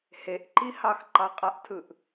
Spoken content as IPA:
heʔǃi hɑxǃɑqʼaʔtʰɯʔ

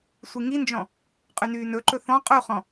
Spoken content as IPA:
sʷiŋind͡ʒɔ̃ | qʼynyːnɵǃɵ θɔ̃ qʼuχɔ̃

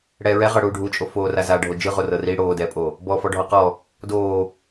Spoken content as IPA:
ɽɛːɹɛʁɤɽuː ɖʱut͡ʃʼo foːrazaɖʱo d͡ʒɯʁo rɤri ɽoːdɛːpʼo | bɔfɔ ɖʱɔqɔ | doː

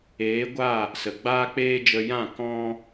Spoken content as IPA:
eː˨˦ɡʷa˦˨ | sə˨ ɡ͡baː˦k͡peː˦d͡ʒə˧ jã˦˨ kɔ̃˦

